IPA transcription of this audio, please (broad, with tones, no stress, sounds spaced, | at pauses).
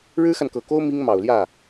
ɻ ɻ̩˥ x a˨ n k ɤ˨˩ k o˥ ʊ̯ m i˥ ŋ m ɑ˨˩ ʊ̯ l j ä˥˩